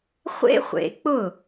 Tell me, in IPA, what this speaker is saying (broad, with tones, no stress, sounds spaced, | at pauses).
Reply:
χʷ ḛ˥ χʷ ḛ˩˥ k͡p ʊ˥˩